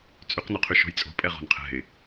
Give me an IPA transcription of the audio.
t͡sʼyqnoqʰy ʃo̤jt͡sʼo̤ pʼɛʁo̤nqʰɛ̤ɪ̯

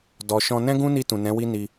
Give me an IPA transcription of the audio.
dɔ˨ʃɔ̃˧ nɛ̃˦ɡũ˦ni˧ tũ˨nɛ̃˨˦wi˦ni˧

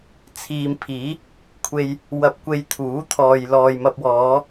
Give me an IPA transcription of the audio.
t͡sʰiː˨mpʰiː˨˥ | kʷʰe˨j | wɐ˧p̚kʷe˧jt̪ʰuː˨˥ t̪ʰɔː˨jlɔː˨jmɐ˧p̚ wɔː˨˧

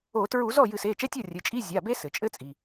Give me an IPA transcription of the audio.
o˧˩˧ tɹu˧˩˧zɔ˥˩ jɨ˧˩˧se˩˧˩t͡ʃɛ˧˥˧tʲɔ˥˩ rʲɘ˩˧˩t͡ʃʼi˧˥˧ zʲa˩˧˩be˦˥ sɘ˩t͡ʃʼɘ˦˥t͡sʼi˩

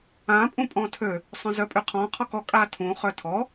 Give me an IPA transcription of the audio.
ã pʼũpʼɔ̃tʰø | sˤœ̃zœpʼyqʰɔ̃ qʰɔkɔ kʼatʰũ χœtʰɔ

